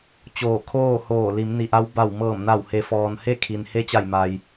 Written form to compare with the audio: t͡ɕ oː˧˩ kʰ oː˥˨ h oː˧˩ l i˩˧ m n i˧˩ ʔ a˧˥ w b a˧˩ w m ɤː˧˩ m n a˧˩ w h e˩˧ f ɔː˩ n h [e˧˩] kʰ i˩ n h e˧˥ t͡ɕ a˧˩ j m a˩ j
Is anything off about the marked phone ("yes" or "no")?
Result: yes